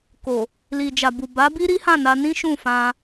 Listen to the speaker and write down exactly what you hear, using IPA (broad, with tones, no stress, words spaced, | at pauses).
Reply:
ko˨ | li˨d͡ʒa˨bu˨ ba˨˦bi˦ ɾi˦hã˦˨na˧nĩ˦ ʃũ˦˨fã˧